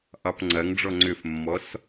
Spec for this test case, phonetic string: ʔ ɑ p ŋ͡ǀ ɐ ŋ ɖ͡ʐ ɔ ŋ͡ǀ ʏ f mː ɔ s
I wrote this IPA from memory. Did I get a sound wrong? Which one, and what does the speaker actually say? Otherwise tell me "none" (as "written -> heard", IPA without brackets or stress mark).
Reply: none